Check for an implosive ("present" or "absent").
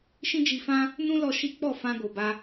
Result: absent